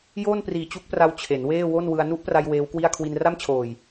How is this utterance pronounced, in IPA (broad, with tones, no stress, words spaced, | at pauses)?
joː˥˩npriː˨˩ t͡ɕu˦˥k̚pra˧w t͡ɕʰe˩˦nweː˥˩ wo˥˩nwɯ˧a̯ nu˦˥ʔpra˧j weː˦˥wkwi˥˩a̯ kʰwi˧nra˥˩mt͡ɕʰoː˨˩j